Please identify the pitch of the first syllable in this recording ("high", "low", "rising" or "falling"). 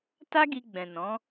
high